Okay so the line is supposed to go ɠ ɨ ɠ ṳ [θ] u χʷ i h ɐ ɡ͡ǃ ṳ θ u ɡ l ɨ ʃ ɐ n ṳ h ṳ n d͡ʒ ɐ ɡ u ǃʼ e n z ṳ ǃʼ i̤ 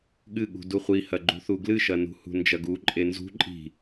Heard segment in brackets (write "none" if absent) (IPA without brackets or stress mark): d